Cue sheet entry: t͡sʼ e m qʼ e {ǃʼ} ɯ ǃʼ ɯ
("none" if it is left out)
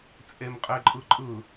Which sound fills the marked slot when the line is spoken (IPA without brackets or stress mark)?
ǃʼ